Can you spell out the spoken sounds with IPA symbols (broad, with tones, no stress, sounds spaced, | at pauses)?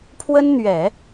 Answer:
pʰ w ə˥ n n̪ ɥ ɛ˨˩˦